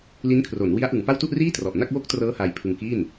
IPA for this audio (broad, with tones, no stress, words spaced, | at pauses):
li˦˥nkʰro˩˦nwi˦˥a̯ ʔɯ˩˦ŋpa˥˩w tu˥˩ʔriː˥˩trɔ˨˩ʔna˥˩k̚ wo˦˥k̚ trɤː˦˥ haː˧jpʰɯ˧ŋkiː˥˩n